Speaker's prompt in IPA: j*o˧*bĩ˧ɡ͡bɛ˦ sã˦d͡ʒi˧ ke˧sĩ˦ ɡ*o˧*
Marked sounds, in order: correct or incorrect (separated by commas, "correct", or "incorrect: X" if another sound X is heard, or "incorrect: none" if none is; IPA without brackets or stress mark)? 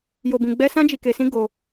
correct, correct